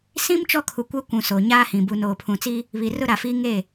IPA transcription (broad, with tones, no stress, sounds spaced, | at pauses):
s ĩ˦ m t͡ʃ ɔ˦ kʰ u˨ kʷ ɛ˦ kʷ ũ˨ s o˨ ɲ aː˦ h ĩ˨ b u˨ n oː˨ pʰ ũ˨ t͡s i˦ | β i˨ r ʊ˦ ɾ a˨ f iː˦ ŋ e˦˨